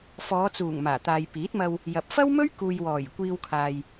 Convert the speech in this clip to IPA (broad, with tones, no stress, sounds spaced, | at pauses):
f ɔː˨˧ t͡s uː˨˩ ŋ m aː˨˩ t̪ aː˨ j p iː˨˥ t̚ m ɐ˧ w | j ɐ˨ p̚ f ɐ˥ w m ɵ˥ ɥ k uː˨ j w ɔː˨˩ j kʷ iː˧ w kʰ aː˨ j